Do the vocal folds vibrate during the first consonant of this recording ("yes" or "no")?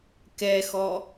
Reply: no